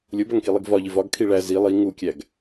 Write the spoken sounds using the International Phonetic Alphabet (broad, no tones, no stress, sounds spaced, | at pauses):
lʲ o b æ ŋ k i lˠ i ɡ v ɒ ʎ i v ɒ ɡ kʰ i ɭ æ z i lˠ i ŋ u kʲ æ ɡ